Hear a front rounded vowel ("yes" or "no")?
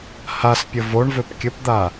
yes